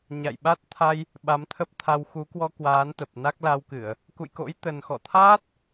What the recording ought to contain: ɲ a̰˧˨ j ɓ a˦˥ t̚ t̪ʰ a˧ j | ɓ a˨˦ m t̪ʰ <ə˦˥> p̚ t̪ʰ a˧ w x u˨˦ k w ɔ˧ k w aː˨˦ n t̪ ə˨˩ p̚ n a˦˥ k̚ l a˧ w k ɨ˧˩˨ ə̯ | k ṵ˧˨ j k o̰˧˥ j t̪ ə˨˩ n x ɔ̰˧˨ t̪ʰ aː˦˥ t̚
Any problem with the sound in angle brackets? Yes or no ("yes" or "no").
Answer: no